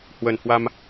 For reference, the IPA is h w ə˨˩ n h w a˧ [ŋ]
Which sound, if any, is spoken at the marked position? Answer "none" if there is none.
m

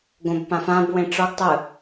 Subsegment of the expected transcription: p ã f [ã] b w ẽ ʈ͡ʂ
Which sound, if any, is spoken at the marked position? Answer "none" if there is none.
ã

